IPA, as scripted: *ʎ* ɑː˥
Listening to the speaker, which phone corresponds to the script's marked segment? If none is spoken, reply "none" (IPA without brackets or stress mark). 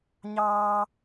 ɲ